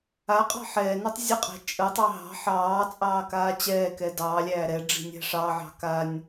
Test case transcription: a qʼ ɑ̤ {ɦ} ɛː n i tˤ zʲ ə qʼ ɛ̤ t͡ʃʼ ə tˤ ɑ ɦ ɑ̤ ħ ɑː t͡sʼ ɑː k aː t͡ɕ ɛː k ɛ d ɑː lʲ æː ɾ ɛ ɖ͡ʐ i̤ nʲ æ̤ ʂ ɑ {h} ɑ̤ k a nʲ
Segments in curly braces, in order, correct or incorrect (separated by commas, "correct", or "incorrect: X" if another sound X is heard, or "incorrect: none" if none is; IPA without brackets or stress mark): incorrect: ħ, incorrect: ʕ